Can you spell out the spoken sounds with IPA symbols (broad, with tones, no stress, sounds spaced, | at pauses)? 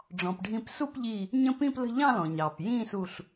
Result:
ɖ͡ʐ ɔ̃˩ p ɖʱ ĩ˧˩ p s u˥˧ p ʎ i˧˩ | ɲ ə̃˥˧ p ĩ˥˧ p l ə̤˥˧ ʎ ɑ̃˥˧ l ɔ̃˩ ɲ ɑː˩ p j ĩː˥˧ s u˧˩ ɬ